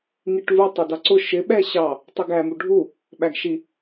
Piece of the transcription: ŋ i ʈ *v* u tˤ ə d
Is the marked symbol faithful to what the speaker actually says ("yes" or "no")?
yes